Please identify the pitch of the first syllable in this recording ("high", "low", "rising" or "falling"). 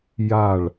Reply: falling